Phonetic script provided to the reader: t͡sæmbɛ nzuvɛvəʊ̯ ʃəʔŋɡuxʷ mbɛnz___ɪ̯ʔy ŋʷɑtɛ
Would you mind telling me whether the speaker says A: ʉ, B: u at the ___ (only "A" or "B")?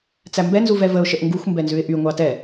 A